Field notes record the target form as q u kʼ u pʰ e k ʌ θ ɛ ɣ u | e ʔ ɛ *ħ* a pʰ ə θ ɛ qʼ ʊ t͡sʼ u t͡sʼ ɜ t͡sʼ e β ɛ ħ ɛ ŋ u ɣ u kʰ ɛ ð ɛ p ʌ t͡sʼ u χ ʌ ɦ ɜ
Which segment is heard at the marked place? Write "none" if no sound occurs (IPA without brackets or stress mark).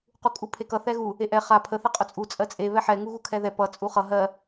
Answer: χ